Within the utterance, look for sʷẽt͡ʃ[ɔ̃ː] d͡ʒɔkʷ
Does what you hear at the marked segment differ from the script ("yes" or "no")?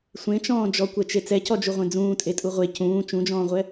no